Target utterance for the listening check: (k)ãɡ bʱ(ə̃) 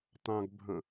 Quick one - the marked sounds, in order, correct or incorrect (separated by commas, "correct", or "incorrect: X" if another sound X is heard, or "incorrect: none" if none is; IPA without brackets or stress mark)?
incorrect: t, correct